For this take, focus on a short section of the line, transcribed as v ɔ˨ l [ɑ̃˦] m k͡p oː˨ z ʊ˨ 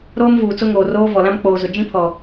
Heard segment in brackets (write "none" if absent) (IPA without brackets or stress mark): ã˦